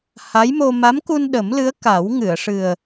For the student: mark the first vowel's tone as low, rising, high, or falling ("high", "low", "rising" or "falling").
rising